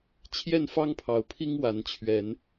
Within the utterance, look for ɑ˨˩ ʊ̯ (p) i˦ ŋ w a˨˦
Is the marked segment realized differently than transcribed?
yes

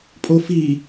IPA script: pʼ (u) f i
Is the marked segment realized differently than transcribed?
yes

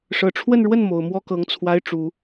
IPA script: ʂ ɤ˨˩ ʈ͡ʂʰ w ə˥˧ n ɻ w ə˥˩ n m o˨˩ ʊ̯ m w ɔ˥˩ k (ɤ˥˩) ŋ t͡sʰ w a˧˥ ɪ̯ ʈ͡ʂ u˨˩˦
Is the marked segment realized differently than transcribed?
yes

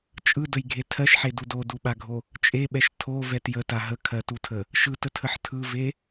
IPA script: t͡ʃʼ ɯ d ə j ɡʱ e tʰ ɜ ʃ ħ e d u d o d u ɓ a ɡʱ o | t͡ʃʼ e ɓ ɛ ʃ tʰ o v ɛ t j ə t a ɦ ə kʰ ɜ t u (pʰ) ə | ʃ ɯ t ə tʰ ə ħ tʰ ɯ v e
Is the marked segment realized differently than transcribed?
yes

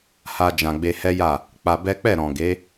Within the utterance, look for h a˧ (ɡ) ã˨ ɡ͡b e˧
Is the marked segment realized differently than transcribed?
yes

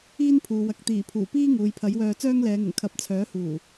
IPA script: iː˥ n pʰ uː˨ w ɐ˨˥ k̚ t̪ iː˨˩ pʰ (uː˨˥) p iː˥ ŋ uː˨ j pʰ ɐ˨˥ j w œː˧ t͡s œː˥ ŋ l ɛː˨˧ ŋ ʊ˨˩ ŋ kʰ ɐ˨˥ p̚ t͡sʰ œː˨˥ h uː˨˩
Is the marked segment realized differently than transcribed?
yes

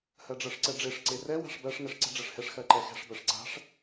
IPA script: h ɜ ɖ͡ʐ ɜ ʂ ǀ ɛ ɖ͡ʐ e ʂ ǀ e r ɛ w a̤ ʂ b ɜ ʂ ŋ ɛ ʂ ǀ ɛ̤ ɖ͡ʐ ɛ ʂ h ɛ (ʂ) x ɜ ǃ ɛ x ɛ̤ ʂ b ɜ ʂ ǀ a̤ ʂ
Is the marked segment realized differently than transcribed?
no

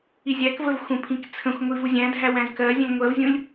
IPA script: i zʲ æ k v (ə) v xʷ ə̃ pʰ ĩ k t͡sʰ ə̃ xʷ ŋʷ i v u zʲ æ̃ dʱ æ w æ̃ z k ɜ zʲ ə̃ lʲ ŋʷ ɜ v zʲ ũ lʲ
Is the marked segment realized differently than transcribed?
no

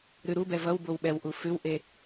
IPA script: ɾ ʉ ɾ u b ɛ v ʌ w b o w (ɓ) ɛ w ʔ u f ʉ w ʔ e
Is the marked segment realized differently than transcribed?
no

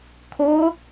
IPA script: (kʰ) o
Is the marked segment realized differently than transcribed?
no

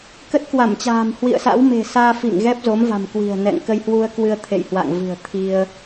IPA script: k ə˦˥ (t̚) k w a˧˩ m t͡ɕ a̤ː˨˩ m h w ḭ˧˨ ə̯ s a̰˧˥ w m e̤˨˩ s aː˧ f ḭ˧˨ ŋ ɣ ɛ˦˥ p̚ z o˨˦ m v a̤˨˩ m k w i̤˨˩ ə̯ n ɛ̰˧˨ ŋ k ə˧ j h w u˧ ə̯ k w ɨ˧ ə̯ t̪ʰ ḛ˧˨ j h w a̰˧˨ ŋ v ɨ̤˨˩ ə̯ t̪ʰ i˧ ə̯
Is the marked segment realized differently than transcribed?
no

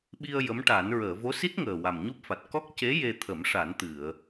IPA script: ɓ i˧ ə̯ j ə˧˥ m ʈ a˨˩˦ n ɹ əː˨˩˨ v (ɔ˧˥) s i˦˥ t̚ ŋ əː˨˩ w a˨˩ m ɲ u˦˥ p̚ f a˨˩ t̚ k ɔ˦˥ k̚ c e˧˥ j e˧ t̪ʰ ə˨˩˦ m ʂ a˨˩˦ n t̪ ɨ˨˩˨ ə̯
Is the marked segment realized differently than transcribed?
yes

